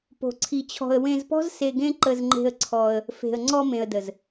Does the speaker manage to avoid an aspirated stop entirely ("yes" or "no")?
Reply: no